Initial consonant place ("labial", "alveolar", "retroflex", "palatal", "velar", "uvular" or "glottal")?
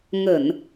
velar